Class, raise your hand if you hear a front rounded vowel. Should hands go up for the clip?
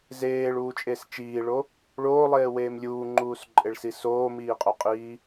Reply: no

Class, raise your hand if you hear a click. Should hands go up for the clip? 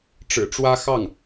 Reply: no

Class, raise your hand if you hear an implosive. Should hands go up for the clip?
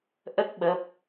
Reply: yes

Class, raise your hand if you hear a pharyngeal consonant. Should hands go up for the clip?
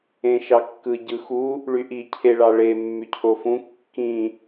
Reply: no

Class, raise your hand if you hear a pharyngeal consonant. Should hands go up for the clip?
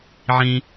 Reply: yes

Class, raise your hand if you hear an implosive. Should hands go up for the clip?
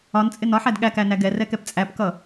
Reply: yes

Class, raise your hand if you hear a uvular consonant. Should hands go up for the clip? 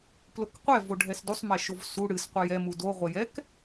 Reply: yes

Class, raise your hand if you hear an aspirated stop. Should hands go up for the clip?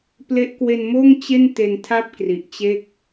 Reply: yes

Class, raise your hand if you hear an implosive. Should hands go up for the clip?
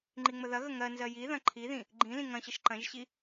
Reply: no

